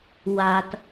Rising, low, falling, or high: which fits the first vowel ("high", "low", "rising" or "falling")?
low